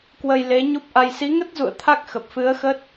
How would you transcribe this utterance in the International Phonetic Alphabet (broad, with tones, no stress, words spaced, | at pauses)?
kwə˧jle˨˦ɲu˦˥p̚ʔa˧j si˨˦ŋə˦˥t̚zṵ˧˨ə̯ t̪ʰa˦˥k̚xə˨˩p̚fɨ˨˦ə̯xə˦˥t̚